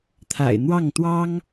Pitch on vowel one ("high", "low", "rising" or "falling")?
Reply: low